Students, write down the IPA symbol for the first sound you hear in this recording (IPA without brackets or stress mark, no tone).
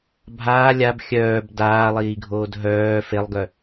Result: bʱ